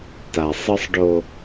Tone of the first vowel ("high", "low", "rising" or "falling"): low